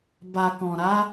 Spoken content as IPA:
b a˨ k ɔ̃˨ ɾ a˨˦

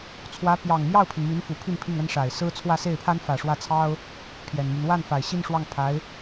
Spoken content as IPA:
t͡sʰ w ä˧˥ p j ɑ˨˩ ŋ m j ɑ˥˩ ʊ̯ pʰ i˩ n m i˧˥ n f u˨˩ pʰ i˥˧ n pʰ i˥˩ ŋ ə˥ n ʂ a˨˩ ɪ̯ s ɹ̩˥ t͡sʰ w ä˥˧ s e˥˩ ɪ̯ pʰ a˥ n f ä˨˩ ʂ w ä˥˩ t͡sʰ ɑ˥ ʊ̯ | pʰ j ɛ˨˩ n m y˦ n w a˥˩ n f a˨˩ ɪ̯ ɕ i˥˧ n ʂ w ɑ˥˩ ŋ pʰ a˧˥ ɪ̯

